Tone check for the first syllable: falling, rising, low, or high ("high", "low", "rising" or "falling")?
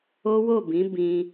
high